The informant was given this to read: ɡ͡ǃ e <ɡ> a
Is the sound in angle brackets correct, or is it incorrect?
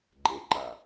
incorrect